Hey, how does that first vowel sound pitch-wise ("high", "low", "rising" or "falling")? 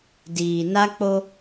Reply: low